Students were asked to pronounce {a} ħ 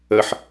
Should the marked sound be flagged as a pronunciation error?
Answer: yes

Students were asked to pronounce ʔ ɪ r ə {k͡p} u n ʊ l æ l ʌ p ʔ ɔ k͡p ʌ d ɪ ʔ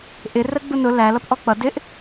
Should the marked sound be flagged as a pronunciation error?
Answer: yes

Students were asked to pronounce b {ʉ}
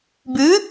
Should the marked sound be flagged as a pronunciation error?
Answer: no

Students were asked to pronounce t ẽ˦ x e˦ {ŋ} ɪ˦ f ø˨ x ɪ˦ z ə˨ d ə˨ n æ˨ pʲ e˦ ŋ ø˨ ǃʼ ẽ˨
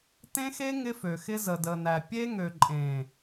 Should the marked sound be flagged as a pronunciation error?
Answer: no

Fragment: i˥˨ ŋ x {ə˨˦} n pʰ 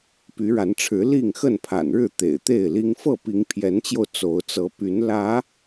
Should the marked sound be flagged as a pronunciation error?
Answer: yes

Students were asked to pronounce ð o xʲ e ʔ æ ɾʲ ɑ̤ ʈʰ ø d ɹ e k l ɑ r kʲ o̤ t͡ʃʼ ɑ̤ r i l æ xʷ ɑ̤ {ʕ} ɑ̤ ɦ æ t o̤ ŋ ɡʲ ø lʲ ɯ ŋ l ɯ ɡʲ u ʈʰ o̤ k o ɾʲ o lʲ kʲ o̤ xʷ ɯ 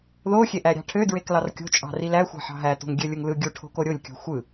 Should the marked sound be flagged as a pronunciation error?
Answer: yes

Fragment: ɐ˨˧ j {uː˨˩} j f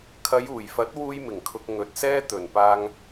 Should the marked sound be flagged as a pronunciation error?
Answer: no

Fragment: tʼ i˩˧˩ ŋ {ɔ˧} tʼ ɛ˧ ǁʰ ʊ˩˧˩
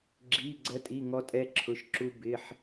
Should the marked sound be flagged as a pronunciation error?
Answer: no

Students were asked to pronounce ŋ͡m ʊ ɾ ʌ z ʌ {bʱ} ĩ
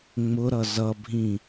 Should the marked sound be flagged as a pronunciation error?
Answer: no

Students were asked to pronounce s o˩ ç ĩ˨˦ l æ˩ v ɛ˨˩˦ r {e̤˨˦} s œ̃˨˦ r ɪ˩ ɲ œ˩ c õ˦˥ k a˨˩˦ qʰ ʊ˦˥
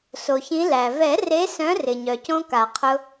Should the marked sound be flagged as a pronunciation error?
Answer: yes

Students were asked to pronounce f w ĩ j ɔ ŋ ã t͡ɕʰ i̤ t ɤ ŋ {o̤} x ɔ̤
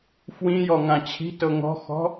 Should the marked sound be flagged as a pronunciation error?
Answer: yes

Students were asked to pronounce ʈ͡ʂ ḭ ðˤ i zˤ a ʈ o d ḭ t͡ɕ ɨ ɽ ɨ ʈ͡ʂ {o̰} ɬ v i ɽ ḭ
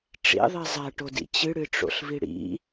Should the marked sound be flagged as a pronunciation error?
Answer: no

